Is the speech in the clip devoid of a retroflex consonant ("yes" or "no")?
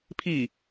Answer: yes